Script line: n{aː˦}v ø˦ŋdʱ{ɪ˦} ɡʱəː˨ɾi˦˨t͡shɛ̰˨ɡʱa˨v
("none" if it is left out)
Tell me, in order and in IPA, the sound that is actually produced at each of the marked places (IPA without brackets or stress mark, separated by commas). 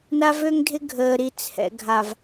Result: a˦, ɪ˦